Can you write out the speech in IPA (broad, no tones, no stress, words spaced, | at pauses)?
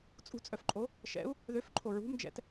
t͡sʼṳt͡sʼœfǃʼo | ʃɛ̰u̯ | ðøfǃʰo ɹṳmd͡ʒɛ̰t